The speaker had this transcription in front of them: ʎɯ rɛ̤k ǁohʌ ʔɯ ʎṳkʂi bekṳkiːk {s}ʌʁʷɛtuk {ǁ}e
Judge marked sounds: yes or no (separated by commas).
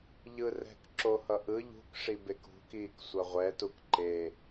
no, no